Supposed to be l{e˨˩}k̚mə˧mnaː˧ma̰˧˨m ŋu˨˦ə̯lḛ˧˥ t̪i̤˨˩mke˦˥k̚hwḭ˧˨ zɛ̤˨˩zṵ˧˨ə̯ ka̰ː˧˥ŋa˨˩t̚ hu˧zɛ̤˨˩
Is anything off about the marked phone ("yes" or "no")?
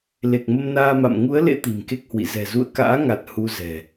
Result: no